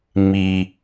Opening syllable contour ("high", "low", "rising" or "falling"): low